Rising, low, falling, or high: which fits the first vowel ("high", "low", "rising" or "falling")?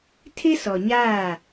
high